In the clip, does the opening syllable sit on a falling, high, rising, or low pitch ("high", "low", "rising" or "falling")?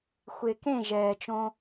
low